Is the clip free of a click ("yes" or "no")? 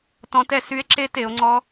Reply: no